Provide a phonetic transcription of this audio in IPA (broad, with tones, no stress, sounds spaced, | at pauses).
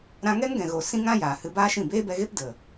ɾ ã˧ ŋ ɛ˦ ŋ ɡ ɛ̃˨ ɣ o˨ s ĩ˦ ŋ ã˦ j aː˨ h ɨ˧ b aː˦ ʃ ĩ˦˨ b eː˦ b ɛ˧ ɣ e˦ p d ə˨